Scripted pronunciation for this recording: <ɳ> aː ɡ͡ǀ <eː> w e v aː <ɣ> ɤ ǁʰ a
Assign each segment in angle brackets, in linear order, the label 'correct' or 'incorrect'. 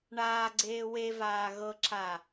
correct, correct, correct

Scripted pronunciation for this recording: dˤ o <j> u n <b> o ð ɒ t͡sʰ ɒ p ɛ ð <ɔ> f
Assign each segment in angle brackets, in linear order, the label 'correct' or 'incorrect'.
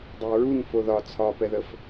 incorrect, incorrect, incorrect

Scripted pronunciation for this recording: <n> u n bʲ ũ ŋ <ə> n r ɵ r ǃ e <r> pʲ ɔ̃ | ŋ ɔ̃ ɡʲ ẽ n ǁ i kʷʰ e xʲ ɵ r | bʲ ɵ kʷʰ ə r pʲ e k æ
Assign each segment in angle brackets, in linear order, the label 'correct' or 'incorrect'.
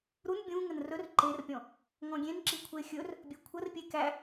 incorrect, correct, correct

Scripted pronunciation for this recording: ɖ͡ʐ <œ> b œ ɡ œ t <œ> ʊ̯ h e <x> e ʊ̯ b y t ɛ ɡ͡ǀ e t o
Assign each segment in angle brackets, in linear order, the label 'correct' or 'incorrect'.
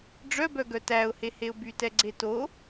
correct, incorrect, incorrect

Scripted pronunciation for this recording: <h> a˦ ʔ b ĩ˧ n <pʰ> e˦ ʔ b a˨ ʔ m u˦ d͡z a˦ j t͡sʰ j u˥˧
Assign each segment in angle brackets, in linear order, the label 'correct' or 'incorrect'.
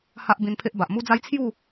correct, correct

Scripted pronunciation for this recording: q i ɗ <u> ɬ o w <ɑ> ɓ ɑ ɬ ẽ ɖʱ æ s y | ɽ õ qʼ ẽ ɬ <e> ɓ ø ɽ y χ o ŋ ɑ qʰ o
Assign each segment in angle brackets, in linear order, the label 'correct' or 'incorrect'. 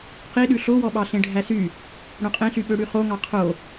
incorrect, incorrect, incorrect

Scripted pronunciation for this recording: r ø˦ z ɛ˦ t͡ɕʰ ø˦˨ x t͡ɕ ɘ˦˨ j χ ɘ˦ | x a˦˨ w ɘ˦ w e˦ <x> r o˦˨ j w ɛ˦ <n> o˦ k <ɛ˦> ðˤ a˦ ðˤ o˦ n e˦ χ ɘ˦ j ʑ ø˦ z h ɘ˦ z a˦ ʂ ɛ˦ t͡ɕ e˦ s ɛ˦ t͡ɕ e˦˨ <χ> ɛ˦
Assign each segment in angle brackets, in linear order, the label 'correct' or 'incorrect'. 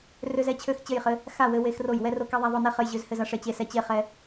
correct, incorrect, correct, correct

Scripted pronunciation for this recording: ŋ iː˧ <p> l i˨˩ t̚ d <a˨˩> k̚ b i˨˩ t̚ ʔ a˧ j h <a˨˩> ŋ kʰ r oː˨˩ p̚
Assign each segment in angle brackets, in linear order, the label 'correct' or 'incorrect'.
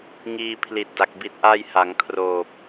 incorrect, correct, incorrect

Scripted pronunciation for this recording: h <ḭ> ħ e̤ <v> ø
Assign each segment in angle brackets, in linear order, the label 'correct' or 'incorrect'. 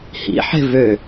correct, correct

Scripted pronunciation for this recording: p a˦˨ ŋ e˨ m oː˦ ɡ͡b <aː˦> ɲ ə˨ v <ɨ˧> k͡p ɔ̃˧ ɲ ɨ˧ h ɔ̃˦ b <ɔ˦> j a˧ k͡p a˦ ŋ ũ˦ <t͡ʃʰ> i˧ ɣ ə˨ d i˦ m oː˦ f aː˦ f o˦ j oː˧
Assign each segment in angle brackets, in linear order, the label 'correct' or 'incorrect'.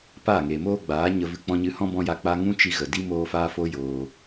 incorrect, incorrect, incorrect, incorrect

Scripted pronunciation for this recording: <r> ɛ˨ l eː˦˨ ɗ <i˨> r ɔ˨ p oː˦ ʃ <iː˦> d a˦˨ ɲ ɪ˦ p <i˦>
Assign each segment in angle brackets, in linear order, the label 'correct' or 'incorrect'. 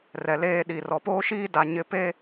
correct, correct, correct, incorrect

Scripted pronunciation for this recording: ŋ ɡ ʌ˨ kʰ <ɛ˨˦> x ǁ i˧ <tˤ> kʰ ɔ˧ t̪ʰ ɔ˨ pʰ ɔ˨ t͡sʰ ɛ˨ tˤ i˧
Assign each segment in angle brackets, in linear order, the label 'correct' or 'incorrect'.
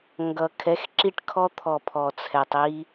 correct, incorrect

